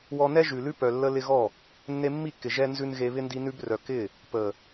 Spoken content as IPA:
w ɔ˧ n ɛ˦ ʒ ʉ˨ l ʉ˦ p œ˨ lː ə˧ l ɪ˧ ɣ ɔ˦˨ | nː e˧ mː i˦˨ kː ɪ˨ ʒ ɛ˧ n z ʉ˧ n ɣ e˧ β ɪ˧ n d i˧ n ʉ˧ b r œ˨ k ɪ˦˨ | p ə˨

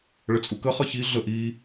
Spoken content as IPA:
ɭ ə t͡sʼ u k ə χ ʌ ç i ɮ ə ʔ i

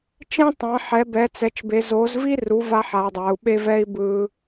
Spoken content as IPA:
t͡ʃ ẽ˦ tˤ ã˩˧ ħ ɛ˩˧ b ɛ˩˧ t͡s ɛ˩˧ t͡ʃ b e˩˧ z o˩˧ z v i˦ r u˩˧ v a˦ ħ a˩˧ dˤ a˩˧ u̯ ɓ e˦ v ɛ˦ i̯ b ɯ˦

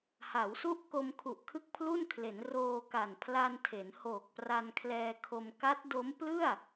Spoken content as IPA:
h a˩˦ w s u˦˥ ʔ k o˧ m kʰ u˨˩ ʔ kʰ ɯ˥˩ k̚ pʰ l u˥˩ n kʰ l e˩˦ n r oː˧ k a˨˩ n pʰ l a˧ n tʰ e˩˦ n h oː˨˩ k̚ p r a˧ n kʰ l ɛː˧ kʰ o˧ m k a˦˥ t̚ d o˦˥ m p l ɯ˥˩ a̯

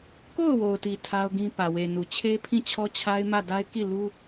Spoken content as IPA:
k o˦˨ ʊ̯ w o˨ ʊ̯ t i˨ tʰ a˦ ʊ̯ ɡ ĩ˦ p ä˨ w e˨ n u˨ t͡ɕʰ e˦ pʰ ĩ˦˨ t͡ɕʰ ɔ˦ t͡ɕʰ a˦ ɪ̯ m ä˦˨ d a˦ ɪ̯ k i˦˨ l u˦

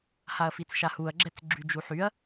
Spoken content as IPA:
h a ɐ̯ f i t͡s ʃ a h u ɐ̯ ɡ͡ǁ ɛ t͡s ɡ͡ǁ y d͡ʒ u ħ y ɐ̯

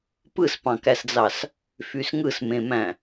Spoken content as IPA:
p ɯ s p ɑ̃ k æ s d͡z ɑ s | f y s ŋ ɯ s m ẽ m æ̃

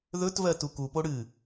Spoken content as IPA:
ð ɵ t v ɜ t u k u p o ɽ ɨ

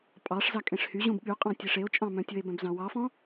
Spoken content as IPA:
pʼ ɑ ʂ z ɑ kʼ ẽ ʂ h y ʑ ũ b ɠ y qʼ ɑ̃ tʲ e ʂ e o̯ t͡ʃʼ ɑ̃ m œ̃ tʲ ɵ e̯ b œ̃ b z ɑ̃ w ɑ f ɔ̃

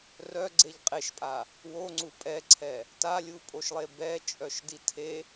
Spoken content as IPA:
r œ ɡ͡ǀ e ʎ qʼ e ʃ pʼ a | w o ŋ͡ǀ u pʼ ɛ ǀʰ ɛ | t a lʲ u pʼ o ʃ lˠ e b ɛ t͡ʃʼ œ ʃ d i tʰ e

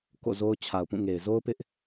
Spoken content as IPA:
k o̰˦˨ z o˦ ʊ̯ t͡ɕʰ a˨ ʊ̯ p ũ˦˨ ŋ e˨ ɪ̯ z o˦ ʊ̯ p ɪ˦ ʔ

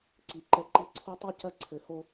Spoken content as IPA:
ǀ i˨ ǃ ɛ˦ ǃ i˦ ǀʰ o˦ tˤ u˦ c ɐ˦ ǀʰ ɘ˨ h o˦

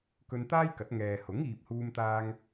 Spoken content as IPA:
k ɵ˧ n t̪ aː˥ j k ɐ˨˥ t̚ ŋ ɛː˨ h ʊ˨˥ ŋ iː˧ p̚ h uː˥ m t̪ aː˥ ŋ

